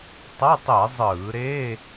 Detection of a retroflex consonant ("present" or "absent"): absent